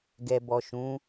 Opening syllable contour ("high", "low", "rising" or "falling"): low